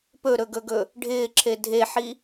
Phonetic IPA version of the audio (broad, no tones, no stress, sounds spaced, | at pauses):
p ɵ ɾ ɵ ɡ ɵ ɡ ɵ | ɖʱ ɪː ǁʰ e dʱ e ħ i